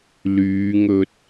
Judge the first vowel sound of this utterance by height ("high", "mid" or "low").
high